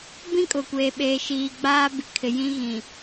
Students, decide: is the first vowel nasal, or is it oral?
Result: nasal